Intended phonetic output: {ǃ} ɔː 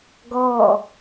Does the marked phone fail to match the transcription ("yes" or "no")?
yes